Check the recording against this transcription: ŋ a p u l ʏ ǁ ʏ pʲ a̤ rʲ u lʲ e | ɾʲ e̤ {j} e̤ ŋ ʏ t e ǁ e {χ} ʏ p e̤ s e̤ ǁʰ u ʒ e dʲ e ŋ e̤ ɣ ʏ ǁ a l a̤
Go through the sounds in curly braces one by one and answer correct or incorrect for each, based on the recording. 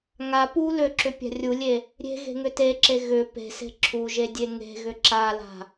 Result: incorrect: ɣ, incorrect: ɣ

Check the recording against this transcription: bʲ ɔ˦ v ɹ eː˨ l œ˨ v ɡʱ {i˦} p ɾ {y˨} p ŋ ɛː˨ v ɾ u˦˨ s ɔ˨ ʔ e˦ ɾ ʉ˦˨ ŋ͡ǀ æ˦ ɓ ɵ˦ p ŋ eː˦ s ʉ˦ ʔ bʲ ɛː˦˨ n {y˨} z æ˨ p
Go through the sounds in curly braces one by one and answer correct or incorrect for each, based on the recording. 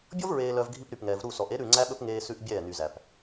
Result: correct, correct, correct

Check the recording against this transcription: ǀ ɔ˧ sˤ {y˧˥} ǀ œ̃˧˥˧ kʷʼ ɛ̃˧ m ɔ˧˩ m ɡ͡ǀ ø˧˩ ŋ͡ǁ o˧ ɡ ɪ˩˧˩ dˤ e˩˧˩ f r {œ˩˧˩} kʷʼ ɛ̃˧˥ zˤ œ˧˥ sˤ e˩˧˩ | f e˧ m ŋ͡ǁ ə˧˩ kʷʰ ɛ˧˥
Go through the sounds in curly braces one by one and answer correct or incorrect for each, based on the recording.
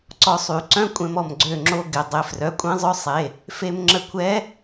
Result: incorrect: y˨˩˦, correct

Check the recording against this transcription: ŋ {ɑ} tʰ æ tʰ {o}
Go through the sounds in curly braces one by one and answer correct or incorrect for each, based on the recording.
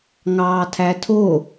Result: incorrect: ɑː, correct

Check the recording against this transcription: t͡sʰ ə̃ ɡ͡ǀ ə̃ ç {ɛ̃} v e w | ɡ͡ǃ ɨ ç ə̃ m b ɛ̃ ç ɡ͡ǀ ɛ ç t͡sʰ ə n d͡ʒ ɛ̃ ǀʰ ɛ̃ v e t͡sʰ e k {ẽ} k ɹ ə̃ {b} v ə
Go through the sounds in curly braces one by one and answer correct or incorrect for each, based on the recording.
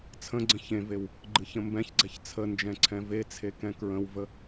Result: incorrect: ẽ, incorrect: ɛ̃, incorrect: w

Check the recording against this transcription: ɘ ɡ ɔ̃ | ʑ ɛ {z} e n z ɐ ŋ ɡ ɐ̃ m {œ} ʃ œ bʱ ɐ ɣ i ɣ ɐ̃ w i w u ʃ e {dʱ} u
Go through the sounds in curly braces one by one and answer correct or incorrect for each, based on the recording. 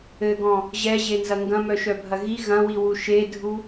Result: incorrect: ʑ, correct, correct

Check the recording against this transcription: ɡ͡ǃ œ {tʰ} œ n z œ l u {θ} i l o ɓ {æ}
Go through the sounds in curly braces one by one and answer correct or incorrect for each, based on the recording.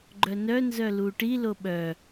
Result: incorrect: n, incorrect: ʈ, incorrect: œ

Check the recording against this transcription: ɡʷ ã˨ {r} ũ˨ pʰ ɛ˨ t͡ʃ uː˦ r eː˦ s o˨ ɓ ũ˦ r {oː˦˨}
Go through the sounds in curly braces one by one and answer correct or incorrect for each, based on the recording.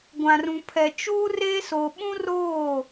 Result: correct, correct

